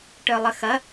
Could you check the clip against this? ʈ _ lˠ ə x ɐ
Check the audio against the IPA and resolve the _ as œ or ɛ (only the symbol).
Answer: œ